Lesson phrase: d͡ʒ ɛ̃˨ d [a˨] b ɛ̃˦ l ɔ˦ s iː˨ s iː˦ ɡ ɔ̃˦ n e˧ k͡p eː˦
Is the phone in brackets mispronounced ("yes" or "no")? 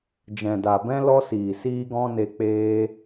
no